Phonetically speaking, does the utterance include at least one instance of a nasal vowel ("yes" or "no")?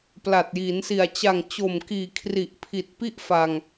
no